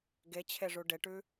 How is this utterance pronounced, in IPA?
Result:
ɡ e t͡ɕʰ e ʐ u ɖ e ʈ ʉ

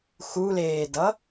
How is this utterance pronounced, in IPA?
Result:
x u l eː d ʌ

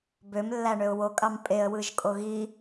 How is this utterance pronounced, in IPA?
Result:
b ø m lː æ ɳ ø ʊ̯ w o kʼ ɑ m pʼ e ə̯ w ɯ ʒ kʼ o ɣ i

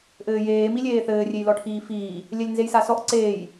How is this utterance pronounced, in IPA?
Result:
ʔ ɘː j eː m i lʲ eː θ ɘː rʲ e j l ɔ ʈʰ iː f iː | lʲ ɛ lʲ n z e j s a s ɔ ʔ ǀ eː j

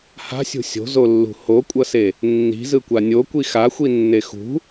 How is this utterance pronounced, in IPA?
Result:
h a̤ sʲ ṳ sʲ o̤ z o lː ṳ h o kʷʼ ʌ s e | nː i̤ z ɯ kʷ a nʲ o kʷ i x a xʷ i nː e x ṳ

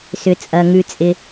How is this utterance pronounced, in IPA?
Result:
s ʏ˩ t͡sʼ ɐ˩ ŋ ʉ˩ t͡sʼ ɪ˩

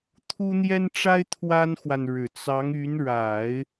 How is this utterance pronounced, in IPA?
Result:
t̪ʰ u˥ n̪ j ɛ˥ n ʈ͡ʂ a˥ ɪ̯ t̪ʰ w a˥ n x w a˨ n ɻ ɻ̩˨˩ t͡s ɑ˧˥ ŋ y˧˥ n ɻ a˨˩˦ ɪ̯

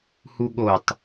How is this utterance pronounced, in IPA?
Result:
h u ɠ o tˤ

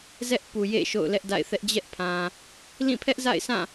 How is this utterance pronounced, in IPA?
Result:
z ɛ˦ ʔ p u˨ j ḛ˦˨ ʃ o̰˦˨ ʊ̯ l ɛ˦ ʔ d a̰˦˨ ɪ̯ θ ɛ˦ ʔ d͡ʑ ɛ˦ ʔ pʰ ã˨ | l ĩ˦˨ pʰ ɛ˦ ʔ z a̰˦˨ ɪ̯ sʰ ã˦˨

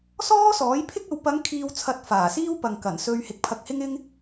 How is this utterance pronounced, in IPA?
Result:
s ɔː˥ s ɔː˨˥ j pʰ ɪ˥ k̚ ɐ˨˧ w p ɐ˨˧ ŋ kʰ iː˨ w t͡sʰ ɐ˨ t̚ f aː˨˩ s iː˥ w p ɐ˨ ŋ k ɐ˨˩ n s ɵ˧ ɥ h ɪ˨˥ k̚ pʰ ɐ˧ k̚ h ɪ˥ ŋ ɪ˥ ŋ

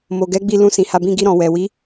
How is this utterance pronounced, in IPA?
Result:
m o˨ ɡ ɛ˨˦ ɡ͡b i˧ l ũ˧ s ĩ˨ h a˧ b ĩ˧ ɡ i˧ ɾ ɔ̃˨ w ɛ˨ w i˨˦

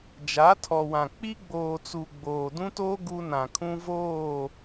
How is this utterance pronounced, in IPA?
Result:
d͡ʒ a˨˦ tʰ ɔ˨ w ã˨ k͡p i˦ ɡ͡b oː˨ t͡s u˨ ɡ͡b oː˨ d ũ˦ t oː˦ ɡ u˦ n ã˨ kʰ ũ˦ v oː˦˨

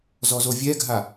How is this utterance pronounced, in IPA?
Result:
z ɔ z o vʲ ɛ ɡʱ a

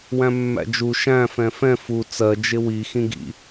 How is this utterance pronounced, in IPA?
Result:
w æ̃ mː æ̰ d͡ʒ u ʃ æ̃ f ɛ̃ f ɛ̃ f u t͡s ɜ d͡ʒ ɪ w i x ĩ ɡ ḭ

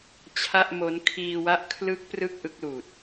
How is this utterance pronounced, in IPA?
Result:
t͡ɕʰ a˥˩ ʔ m o˦˥ n kʰ iː˧ w a˦˥ ʔ kʰ l ɯ˦˥ k̚ p r ɯ˥˩ k̚ ʔ ɯ˦˥ k̚ l uː˨˩ t̚

